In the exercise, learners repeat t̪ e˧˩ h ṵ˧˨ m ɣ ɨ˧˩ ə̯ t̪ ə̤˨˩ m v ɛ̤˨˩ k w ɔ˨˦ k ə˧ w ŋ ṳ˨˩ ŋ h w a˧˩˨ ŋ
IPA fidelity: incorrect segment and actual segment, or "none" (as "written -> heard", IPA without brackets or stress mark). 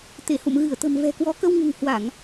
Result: none